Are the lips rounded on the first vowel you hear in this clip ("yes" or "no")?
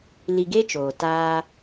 no